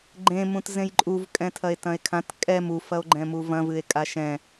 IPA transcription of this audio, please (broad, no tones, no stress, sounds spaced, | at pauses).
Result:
ɡ͡ǃ ẽ m ũ t z ẽ j ǃʼ u v kʼ ɛ̃ tʰ ɐ e̯ t ɐ̃ e̯ kʰ ã t kʼ ɛ m u f ɐ o̯ ɡ͡ǃ ɛ̃ m u v ɐ̃ v ɨ e̯ kʼ a ʃ ɛ̃